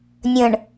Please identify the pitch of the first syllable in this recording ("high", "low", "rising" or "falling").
low